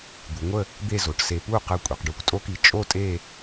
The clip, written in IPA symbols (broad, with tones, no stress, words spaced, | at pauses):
d̪u˩˧ŋʷə˥˧ | d̪e˥˧zo˩˧ʈse˧ pu˥˧qə˧˩ kʷʼe˩˧qɖu˧˩kʷtʼo˥ki˧˩ t͡ʃʼo˥˧tʼe˥˧